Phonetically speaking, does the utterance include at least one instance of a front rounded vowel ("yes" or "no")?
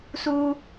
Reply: no